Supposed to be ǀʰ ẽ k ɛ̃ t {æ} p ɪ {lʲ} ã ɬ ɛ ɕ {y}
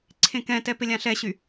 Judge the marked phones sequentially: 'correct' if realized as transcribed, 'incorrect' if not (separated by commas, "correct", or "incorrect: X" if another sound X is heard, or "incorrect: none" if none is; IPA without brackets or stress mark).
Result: incorrect: ɛ, correct, correct